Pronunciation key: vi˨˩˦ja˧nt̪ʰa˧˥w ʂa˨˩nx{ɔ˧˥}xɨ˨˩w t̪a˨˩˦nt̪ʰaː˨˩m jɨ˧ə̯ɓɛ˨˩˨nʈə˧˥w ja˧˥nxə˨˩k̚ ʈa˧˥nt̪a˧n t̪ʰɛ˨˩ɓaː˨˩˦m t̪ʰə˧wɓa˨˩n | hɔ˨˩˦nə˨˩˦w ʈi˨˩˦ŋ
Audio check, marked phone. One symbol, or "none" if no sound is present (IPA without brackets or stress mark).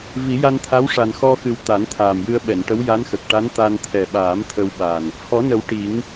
ɔ˧